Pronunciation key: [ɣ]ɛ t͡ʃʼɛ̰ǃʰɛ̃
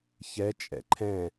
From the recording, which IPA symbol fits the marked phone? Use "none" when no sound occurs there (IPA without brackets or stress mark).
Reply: ç